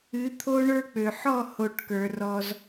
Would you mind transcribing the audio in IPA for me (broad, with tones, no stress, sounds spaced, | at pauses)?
ɨ˨˦ t̪ʰ o˦ ɳ ə˞˦ k͡p ø˨ ħ ɔ˦˨ h o˨ ʈ k ə˞˨ r ɔ˦ z